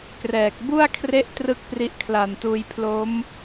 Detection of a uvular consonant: absent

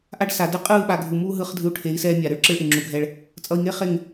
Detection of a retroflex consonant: present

